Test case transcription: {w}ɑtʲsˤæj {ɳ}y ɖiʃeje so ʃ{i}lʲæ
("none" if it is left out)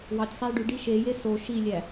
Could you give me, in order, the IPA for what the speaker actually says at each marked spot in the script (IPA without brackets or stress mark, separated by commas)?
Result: w, ɖ, i